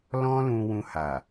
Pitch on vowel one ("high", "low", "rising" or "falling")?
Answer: high